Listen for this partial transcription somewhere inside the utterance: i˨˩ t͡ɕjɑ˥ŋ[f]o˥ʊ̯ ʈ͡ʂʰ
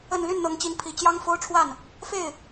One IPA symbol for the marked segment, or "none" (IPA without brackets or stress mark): f